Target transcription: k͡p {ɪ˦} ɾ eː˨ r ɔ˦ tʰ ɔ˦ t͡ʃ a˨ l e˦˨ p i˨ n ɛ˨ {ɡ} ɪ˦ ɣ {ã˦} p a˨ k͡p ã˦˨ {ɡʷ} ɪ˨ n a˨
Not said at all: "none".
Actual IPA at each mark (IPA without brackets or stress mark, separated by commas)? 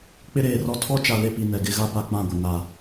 ɪ˦, ɡ, a˦, ɡʷ